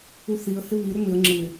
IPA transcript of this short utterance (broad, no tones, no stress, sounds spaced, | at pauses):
u θ i ə̯ h ɪ β i ɾ ʏ m ɪ ə̯ ŋ͡ǁ ɯ ɪ̯